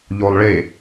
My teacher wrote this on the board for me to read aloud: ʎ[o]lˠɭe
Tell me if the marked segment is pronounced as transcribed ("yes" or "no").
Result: yes